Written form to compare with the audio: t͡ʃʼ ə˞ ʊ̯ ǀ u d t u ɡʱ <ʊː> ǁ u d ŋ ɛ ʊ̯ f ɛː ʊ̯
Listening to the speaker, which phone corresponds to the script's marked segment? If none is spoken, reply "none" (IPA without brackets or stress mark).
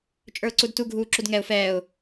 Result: uː